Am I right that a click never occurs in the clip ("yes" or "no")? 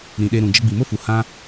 yes